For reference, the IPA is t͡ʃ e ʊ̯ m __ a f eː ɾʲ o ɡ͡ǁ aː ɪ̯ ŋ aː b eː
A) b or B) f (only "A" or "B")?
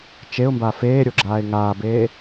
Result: A